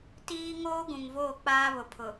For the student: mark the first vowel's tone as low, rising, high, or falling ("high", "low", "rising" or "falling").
high